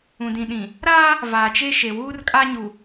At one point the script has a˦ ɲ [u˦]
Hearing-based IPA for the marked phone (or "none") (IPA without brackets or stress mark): u˨